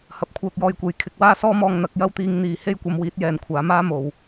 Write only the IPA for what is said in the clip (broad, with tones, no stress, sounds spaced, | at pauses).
h ɐ˨˥ p̚ kʷʰ œː˧ k̚ j ɔː˧ j kʷ e˨ j kʰ ɪ˨˥ k̚ w aː˥ s ɔː˥ m ɔː˧ ŋ n̪ ɐ˨˥ k̚ j ɐ˥ w t̪ iː˨˧ ŋ n̪ iː˨ h e˥ j kʷ ɐ˧ m w iː˨˥ t̚ j ɛː˨˧ n kʷʰ aː˨˥ m aː˥ m o˨ w